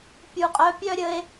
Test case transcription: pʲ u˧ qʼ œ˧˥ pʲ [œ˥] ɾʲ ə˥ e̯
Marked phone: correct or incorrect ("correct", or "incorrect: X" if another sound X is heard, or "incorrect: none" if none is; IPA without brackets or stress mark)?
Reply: correct